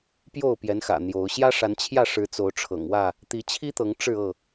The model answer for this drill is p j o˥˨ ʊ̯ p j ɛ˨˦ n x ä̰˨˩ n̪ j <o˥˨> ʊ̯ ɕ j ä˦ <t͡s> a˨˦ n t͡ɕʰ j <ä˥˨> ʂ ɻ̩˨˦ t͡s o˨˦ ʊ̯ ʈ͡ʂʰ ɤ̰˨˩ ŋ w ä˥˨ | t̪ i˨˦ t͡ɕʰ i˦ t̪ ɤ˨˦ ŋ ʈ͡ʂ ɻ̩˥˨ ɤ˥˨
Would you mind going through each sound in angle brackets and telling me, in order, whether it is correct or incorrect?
incorrect, incorrect, correct

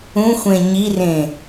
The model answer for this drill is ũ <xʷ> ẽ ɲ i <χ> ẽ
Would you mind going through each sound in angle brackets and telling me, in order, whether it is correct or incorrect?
correct, incorrect

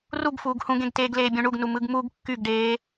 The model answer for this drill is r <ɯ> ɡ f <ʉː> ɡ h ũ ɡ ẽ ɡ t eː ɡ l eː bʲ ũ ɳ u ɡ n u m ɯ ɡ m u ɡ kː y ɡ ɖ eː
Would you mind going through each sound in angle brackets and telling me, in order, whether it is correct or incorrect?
incorrect, incorrect

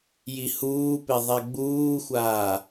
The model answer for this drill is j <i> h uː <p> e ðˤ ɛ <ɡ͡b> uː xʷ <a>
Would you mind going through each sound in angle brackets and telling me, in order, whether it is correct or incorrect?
correct, correct, correct, incorrect

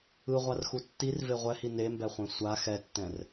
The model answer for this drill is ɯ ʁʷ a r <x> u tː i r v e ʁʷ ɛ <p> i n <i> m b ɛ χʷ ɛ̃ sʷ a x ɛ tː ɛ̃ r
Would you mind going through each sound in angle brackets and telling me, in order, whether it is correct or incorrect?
correct, incorrect, incorrect

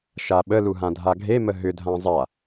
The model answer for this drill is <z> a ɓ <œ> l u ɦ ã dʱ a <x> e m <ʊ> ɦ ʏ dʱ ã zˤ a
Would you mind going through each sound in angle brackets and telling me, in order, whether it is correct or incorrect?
incorrect, incorrect, incorrect, incorrect

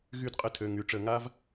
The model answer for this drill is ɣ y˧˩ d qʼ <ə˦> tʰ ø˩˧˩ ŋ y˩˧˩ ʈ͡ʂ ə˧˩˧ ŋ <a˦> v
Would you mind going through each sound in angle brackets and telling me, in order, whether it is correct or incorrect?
incorrect, correct

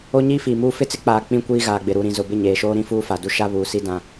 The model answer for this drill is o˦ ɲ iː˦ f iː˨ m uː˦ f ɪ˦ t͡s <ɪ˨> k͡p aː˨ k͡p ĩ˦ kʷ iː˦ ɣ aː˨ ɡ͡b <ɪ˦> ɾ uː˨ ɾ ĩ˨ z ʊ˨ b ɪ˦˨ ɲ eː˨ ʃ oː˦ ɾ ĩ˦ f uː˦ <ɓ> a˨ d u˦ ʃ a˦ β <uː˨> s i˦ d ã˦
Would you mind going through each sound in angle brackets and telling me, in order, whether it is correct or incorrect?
incorrect, incorrect, incorrect, correct

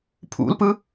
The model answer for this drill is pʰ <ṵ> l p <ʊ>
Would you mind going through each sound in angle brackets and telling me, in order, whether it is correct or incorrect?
correct, incorrect

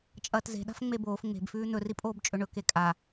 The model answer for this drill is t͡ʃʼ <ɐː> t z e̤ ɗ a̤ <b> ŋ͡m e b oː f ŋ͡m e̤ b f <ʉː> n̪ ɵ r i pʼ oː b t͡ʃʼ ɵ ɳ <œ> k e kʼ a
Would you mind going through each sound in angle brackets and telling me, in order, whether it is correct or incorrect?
correct, incorrect, correct, incorrect

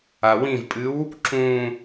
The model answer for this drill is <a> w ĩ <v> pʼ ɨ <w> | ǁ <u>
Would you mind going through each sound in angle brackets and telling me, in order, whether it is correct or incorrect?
correct, correct, correct, incorrect

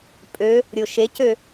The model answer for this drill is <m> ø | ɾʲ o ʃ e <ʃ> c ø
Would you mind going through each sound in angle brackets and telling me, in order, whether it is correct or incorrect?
incorrect, incorrect

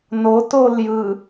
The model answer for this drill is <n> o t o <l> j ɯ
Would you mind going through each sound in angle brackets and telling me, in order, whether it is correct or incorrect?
correct, correct

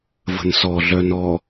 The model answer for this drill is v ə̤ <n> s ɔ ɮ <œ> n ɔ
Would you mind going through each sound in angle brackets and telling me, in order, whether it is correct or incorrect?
correct, correct

